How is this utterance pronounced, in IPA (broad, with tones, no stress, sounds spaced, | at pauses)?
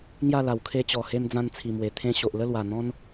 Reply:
ŋ j a˥˧ l a˨˩ w kʰ e˧ t͡ɕ ɔ˨˩ h e˧ m d͡z ã˧ n t͡sʰ i˨˩ m w e˨˩ t̪ʰ ẽ˧ ɕ o˨ ʔ l ə˥˧ l w a˨˩ n̪ ɔ̃˦ n